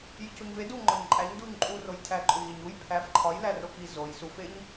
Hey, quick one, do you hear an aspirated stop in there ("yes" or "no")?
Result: yes